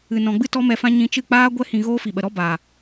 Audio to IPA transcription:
ɨ˨ n ɔ̃˨ ɡ͡b ɨ˦ t ɔ˦ m ɛ˧ f ã˦ ɲ ĩ˧ t͡ʃ ɨ˦˨ k͡p aː˦ ɡʷ ɛ˦ h ĩ˧ ɣ oː˦ f i˨ ɓ ə˨ ɾ ɔ˦ b a˨

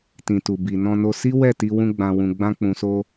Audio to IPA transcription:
t ĩ˨ t u˨ b i˨ n ɔ̃˧ n o˧ s i˦ w ɛ˦˨ t i˧ w ũ˧ ɡ͡b ã˨ w ũ˨ ɡ͡b ã˧ k͡p ũ˨ s o˧

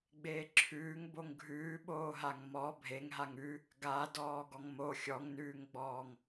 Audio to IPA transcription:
ɡ͡b eː ǁʰ ʉː ŋ b o ŋ ɡʱ ʉː ɓ oː ɦ a ŋ m ɔ bʱ e ŋ ɦ a ŋ ʉ | ɡ a d ɔː ɡ ɔ ŋ m o xʲ ɔ ŋ n ʉː ŋ ɡ͡b ɔː ŋ

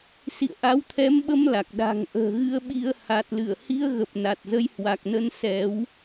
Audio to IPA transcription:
s ḭ˧˨ ə̯ ʔ a˨˦ w t̪ʰ ɛ˨˦ m ɓ ə˧ m l a˨˩ k̚ ɗ a̤˨˩ ŋ ʔ ə̤ː˨˩ ɣ ɨ˧ ə̯ ɓ i˧ ə̯ h a˨˩ t̚ l ɨ˧˩ ə̯ h i˧ ə̯ ɣ ə˨˩ p̚ n a˨˩ t̚ z ə˨˦ j h w a˨˩ k̚ n ə˧ n s ɛ˨˦ w

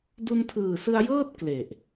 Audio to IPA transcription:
d u˧ n tʰ ɯː˨˩ s ɯ˧ a̯ j ɤː˥˩ t̚ k l e˨˩ ʔ

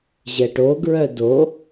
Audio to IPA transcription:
ʑ ɛ ʈ o ɡ ɹ œ d o

